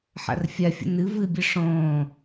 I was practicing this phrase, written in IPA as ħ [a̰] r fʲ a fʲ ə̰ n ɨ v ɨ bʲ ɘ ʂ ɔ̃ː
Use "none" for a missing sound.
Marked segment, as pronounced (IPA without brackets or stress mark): a̰